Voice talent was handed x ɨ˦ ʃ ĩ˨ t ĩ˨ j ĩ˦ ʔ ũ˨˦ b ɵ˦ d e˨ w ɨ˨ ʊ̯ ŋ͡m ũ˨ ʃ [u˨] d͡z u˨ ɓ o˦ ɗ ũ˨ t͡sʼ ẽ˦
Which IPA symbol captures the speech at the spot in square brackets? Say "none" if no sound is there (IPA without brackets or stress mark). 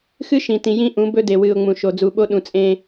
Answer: o˨